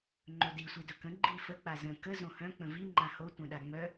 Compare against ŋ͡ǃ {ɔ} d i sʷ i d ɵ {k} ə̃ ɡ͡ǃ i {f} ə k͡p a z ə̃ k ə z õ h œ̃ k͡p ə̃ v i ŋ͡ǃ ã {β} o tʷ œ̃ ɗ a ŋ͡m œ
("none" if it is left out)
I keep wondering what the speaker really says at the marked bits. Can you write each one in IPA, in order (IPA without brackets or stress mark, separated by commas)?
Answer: ɵ, k, f, h